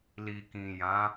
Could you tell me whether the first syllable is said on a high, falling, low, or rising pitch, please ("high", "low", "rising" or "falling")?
low